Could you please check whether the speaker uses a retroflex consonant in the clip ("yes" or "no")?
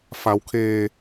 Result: no